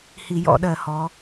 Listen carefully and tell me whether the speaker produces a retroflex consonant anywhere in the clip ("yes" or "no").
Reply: no